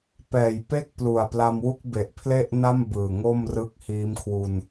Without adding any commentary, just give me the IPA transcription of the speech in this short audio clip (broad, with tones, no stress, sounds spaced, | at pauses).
p ɛː˨˩ j p e˥˩ k̚ p l u˨˩ a̯ p l a˧ m w u˥˩ k̚ b e˨˩ ʔ pʰ l e˥˩ ʔ n a˥˩ m b ɯː˨˩ ŋ o˥˩ m r ɯ˦˥ k̚ h iː˦˥ m kʰ w u˧ n